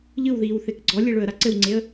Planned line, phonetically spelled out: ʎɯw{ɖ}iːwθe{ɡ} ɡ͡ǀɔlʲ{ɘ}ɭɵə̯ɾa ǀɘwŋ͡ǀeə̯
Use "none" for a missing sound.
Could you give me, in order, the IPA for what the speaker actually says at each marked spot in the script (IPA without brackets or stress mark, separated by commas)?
ð, k, e